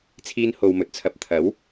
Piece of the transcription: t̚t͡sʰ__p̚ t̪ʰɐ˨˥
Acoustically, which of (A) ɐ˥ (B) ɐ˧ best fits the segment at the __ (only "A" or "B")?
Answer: B